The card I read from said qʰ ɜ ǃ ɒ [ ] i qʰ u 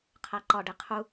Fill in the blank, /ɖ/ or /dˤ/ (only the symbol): ɖ